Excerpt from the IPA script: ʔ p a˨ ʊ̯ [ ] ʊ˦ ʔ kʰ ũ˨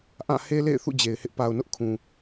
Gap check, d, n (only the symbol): n